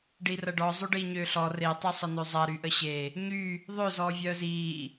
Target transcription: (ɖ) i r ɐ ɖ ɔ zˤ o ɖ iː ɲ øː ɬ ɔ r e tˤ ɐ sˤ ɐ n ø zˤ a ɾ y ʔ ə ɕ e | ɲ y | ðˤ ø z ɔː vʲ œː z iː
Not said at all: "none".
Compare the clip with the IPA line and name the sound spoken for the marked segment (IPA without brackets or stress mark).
ɖ